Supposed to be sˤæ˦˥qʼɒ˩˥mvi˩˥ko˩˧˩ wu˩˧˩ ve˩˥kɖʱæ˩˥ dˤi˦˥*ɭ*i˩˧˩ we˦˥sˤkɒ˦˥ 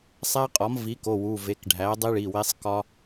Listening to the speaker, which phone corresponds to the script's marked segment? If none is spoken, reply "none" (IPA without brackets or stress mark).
ɭ